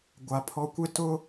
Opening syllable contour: low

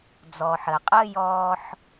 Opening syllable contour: low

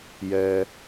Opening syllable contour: low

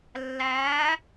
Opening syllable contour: rising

